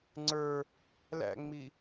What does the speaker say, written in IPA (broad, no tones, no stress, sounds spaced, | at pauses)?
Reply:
ŋ͡ǀ ə˞ | l æ̰ ŋ͡m i